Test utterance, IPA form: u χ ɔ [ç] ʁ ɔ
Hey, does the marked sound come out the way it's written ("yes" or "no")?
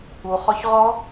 yes